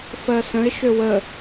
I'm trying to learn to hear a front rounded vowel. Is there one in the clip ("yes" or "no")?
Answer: yes